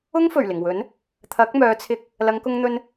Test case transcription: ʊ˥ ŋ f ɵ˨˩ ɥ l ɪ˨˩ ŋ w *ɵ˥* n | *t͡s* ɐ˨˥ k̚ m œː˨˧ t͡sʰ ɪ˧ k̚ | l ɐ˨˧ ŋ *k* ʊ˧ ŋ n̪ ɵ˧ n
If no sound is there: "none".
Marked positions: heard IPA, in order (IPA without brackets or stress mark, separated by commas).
ɵ˨˥, t̪ʰ, k